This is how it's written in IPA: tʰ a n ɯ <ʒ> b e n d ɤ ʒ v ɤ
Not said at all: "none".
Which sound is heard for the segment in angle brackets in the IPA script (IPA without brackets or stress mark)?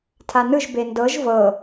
ʒ